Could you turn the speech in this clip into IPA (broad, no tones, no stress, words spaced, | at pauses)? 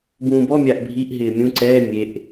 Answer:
bũːbɔ mʲaʔbʱiʔ ɦɪːmʲũ ǀɛː mʲeʔ